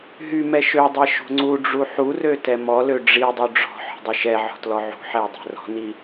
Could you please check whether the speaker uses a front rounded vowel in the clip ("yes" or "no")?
yes